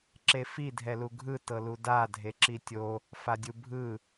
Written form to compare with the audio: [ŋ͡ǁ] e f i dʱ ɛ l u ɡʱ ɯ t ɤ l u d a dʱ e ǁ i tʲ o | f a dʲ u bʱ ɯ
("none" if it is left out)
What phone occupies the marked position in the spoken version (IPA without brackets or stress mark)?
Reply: ǁ